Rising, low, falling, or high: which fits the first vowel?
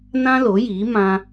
high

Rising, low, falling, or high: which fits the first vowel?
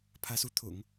rising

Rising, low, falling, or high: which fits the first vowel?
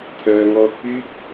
low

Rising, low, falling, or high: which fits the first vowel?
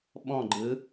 falling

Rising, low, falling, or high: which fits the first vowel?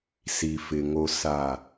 low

